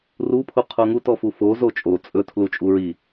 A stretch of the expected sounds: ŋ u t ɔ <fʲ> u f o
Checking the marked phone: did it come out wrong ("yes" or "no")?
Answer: yes